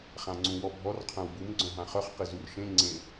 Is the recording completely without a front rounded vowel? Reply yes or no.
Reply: no